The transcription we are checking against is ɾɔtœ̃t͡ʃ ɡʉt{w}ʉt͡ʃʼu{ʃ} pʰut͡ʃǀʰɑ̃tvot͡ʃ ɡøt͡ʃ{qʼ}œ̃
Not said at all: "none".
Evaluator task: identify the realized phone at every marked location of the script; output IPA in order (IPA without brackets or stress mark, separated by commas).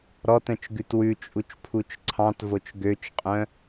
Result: w, t͡ʃ, qʼ